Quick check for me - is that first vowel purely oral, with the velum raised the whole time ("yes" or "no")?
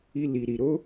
yes